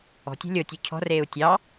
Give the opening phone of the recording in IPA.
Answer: ɔ̤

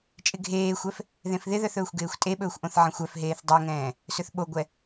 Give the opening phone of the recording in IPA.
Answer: t͡ʃʼ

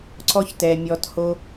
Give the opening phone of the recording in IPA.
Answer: ǀ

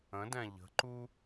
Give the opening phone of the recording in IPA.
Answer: ə̃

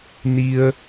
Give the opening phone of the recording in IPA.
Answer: n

